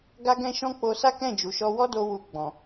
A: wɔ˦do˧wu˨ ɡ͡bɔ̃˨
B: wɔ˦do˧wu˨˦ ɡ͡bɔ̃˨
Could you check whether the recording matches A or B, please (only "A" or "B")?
A